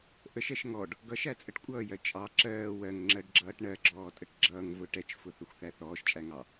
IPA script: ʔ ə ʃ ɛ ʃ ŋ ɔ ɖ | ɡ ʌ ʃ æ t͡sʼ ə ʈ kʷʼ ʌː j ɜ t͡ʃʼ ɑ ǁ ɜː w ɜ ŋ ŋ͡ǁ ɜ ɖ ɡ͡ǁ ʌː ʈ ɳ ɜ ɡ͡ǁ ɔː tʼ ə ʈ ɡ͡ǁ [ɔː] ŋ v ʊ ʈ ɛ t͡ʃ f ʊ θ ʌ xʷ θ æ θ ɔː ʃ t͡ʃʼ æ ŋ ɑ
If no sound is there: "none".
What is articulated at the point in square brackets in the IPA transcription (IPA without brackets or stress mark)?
ʌː